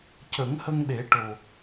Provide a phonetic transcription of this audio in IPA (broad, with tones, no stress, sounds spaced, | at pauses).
c ə˨˩˦ ŋ h ə˧ ŋ ɗ e˨˩˦ ʈ o˨˩